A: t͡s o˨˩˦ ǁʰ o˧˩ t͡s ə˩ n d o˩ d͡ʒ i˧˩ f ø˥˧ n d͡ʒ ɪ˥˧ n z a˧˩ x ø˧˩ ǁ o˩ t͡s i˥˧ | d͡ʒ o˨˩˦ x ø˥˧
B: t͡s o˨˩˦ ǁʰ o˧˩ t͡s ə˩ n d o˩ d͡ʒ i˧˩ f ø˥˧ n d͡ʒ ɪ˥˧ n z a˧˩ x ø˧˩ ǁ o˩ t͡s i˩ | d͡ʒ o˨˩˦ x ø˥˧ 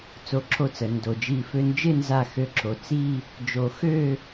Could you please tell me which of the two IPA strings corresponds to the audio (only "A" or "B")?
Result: A